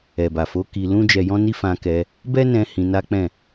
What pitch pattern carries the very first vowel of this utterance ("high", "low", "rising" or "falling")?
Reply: low